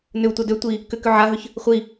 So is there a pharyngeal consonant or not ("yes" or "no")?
yes